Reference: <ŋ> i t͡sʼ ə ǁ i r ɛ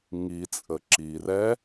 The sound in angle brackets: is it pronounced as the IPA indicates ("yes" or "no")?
yes